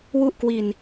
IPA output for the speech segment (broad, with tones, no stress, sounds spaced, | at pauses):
w u˥˩ ʔ k w i˧ n